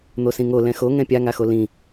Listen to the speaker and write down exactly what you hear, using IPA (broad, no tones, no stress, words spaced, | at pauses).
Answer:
n̪osĩŋo lɛ̃xo ŋɛ̃pʲaŋaxo lĩ